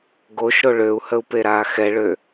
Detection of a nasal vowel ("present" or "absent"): absent